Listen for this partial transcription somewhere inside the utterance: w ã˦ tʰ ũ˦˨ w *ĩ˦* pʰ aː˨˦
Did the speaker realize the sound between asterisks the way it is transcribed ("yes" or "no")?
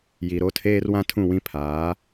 yes